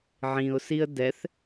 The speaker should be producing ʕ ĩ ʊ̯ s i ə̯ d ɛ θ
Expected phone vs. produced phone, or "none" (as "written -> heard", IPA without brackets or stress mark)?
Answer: none